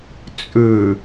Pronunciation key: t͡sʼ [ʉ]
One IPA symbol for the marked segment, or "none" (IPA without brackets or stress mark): ʉ